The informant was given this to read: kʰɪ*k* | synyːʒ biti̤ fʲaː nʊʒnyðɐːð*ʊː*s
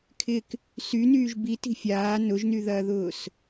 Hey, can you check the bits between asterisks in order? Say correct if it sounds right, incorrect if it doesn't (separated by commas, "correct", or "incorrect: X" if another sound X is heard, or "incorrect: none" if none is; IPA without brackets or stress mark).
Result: correct, correct